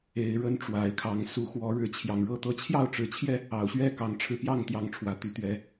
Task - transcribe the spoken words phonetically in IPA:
e˨˦ɪ̯ɻə˦n ʈ͡ʂwa˨˦ɪ̯kʰɑ˨˦ŋ su˨˦xwɔ˨˦ɻɻ̩˨˦ t͡ɕʰjɑ˨˩ŋɻɤ˥˨t̪ɤ˥˨ t͡ɕʰjɑ˥˨ʊ̯ʈ͡ʂɻ̩˨˩t͡ɕʰjɛ˥˨ | ɑ˨˩ʊ̯ɕɥɛ˥˨ kɑ˨˦ŋʈ͡ʂʰɻ̩˧ pjɑ˥˨ŋt̪jɑ˨˦ŋ ʈ͡ʂʰwä˨˩t̪y˨˦t̪ɥɛ˨˦

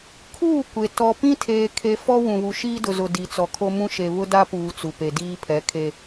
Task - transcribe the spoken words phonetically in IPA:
kʰuː˦˨ kʷe˨ tɔ˨pĩ˦tʰeː˨ kʰe˨ fɔ˦wũ˨βu˨ ʃiː˦dʊ˨zʊ˨ di˨t͡sɔ˨kʰo˦mũ˦ ʃe˨βʊ˦ da˦puː˨ t͡su˨pe˨ diː˦ pʰɛ˨˦kʰe˦

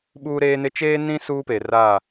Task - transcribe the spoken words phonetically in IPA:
ɓuː˦ɾeː˦nɪ˦ t͡ʃeː˦nĩ˦ suː˦peː˨ra˦˨

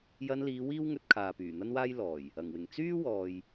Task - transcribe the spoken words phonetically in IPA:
jɐ˧nliː˨˧ wiː˥wŋɵ˧t̚ kʰaː˨pyː˨˩n̪ɐ˥nwaː˥j lɔː˨˩j | ɐ˨˩ŋwɪ˨˩ŋ t͡syː˥wɔː˨j

